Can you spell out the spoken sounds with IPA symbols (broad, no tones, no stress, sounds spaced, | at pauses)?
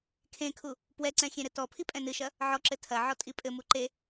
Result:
kʰ ẽ kʰ u | p w ɛ ǀ ɛ̃ xʲ ẽ ɾ ɘ t ɔ pʰ i pʼ ɛ̃ n ɨ ʃ ɐ | ʕ ɔ ǁ ɘ tʰ ɐ ʕ ɔ tʼ i pʼ ɘ m u ǃ e